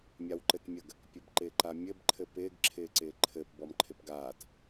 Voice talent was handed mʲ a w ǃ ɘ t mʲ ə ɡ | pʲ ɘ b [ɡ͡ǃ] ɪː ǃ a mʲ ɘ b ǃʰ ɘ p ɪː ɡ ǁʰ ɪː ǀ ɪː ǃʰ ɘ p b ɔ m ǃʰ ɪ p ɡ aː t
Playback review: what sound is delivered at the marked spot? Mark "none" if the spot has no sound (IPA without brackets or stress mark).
ǃ